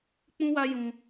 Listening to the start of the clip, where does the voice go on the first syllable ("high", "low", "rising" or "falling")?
high